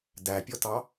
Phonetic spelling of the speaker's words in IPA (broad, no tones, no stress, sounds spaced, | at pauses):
d æ pʲ ɔ t ɑ